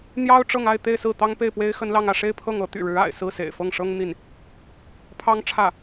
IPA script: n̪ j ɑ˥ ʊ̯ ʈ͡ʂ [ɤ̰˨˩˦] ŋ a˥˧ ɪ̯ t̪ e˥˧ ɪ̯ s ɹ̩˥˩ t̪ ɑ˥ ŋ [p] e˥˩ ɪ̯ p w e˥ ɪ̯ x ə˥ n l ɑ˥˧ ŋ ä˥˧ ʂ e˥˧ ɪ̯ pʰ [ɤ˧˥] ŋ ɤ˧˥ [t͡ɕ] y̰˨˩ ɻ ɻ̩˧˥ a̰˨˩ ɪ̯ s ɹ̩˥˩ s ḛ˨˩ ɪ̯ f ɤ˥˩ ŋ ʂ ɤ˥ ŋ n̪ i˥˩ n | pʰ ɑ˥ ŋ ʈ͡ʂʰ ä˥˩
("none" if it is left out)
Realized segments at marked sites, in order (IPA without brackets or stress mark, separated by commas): ɤ˥˧, p, ɤ˥˩, t̪